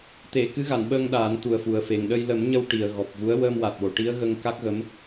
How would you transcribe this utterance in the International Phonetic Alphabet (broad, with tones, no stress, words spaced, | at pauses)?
t̪e˨˩˨ kɨ˧˥ɣa˨˩˨nɓəː˧ŋ ɗaː˨˩˦nt̪u˨˩ə̯fu˨˩ə̯fe˨˩ŋ ɗə˧j lə˨˩˦mɲə˧w ʈi˨˩ə̯ɣɔ˨˩p̚vu˧˥ə̯ wəː˧mwa˨˩t̚wo˨˩˨ ʈi˧˥ə̯ɣə˧ŋ ka˦˥k̚ɣə˧˥m